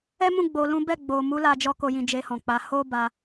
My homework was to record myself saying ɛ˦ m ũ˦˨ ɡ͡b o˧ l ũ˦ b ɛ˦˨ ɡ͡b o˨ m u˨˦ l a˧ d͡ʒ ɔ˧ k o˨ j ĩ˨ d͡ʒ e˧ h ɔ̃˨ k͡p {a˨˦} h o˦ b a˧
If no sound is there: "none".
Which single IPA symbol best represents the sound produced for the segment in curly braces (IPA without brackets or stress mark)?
a˨˦